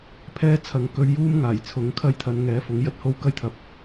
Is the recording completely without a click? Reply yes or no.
yes